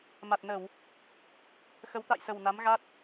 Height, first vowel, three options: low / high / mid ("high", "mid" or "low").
low